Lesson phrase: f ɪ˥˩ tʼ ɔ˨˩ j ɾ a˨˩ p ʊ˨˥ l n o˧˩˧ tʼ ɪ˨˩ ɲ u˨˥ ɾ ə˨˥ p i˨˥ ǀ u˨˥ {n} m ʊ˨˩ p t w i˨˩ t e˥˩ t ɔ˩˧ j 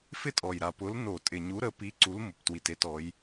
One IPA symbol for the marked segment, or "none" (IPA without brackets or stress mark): l